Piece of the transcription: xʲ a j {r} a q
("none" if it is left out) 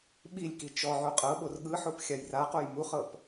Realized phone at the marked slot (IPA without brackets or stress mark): r